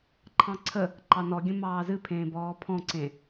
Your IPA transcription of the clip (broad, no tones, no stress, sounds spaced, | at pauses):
ǃʰ ɑ̃ ǀʰ ə | ǃ ɑ n ɔ ɡʲ ə̃ m ɑː z ɨ pʰ ẽː b ɔː pʰ ɔ̃ ǀ ẽ